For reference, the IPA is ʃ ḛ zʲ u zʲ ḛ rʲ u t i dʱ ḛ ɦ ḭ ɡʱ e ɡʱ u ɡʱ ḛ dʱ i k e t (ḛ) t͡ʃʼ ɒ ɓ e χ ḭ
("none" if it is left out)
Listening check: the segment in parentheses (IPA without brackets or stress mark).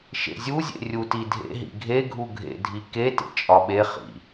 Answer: ḛ